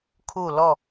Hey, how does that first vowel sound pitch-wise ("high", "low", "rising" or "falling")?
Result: falling